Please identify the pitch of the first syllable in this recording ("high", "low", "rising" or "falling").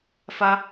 high